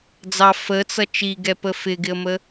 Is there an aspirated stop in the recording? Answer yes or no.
no